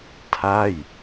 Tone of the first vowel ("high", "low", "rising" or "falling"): falling